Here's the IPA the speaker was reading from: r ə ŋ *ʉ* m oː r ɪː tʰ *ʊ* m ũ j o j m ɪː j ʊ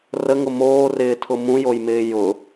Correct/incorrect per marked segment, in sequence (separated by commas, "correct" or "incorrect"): incorrect, correct